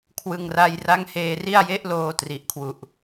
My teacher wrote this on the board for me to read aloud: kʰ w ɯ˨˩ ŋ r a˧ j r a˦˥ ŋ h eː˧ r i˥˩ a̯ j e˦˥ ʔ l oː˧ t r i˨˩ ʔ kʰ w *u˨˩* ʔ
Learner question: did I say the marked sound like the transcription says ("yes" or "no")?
yes